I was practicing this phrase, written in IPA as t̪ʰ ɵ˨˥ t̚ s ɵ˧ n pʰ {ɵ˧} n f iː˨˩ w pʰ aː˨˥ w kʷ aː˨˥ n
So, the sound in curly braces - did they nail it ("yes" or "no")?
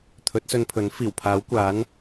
no